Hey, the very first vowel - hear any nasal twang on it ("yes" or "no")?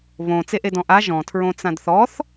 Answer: yes